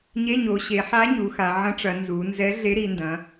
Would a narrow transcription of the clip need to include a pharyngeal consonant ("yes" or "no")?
yes